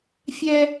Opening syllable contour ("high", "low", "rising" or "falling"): high